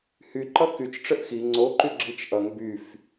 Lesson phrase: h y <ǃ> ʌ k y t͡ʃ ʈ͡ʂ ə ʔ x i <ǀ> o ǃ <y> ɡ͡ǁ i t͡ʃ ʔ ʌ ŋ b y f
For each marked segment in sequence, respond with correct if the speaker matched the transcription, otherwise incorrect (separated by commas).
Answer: correct, incorrect, correct